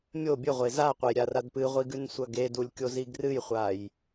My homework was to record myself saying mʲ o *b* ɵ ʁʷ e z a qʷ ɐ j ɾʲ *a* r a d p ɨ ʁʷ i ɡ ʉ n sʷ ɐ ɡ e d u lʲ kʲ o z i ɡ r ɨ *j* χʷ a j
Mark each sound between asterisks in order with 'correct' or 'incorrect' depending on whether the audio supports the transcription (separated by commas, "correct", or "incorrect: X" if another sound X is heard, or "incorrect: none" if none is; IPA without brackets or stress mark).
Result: incorrect: bʲ, correct, correct